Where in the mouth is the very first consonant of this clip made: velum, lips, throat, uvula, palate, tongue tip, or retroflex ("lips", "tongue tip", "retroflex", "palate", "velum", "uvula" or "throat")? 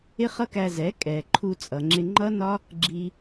uvula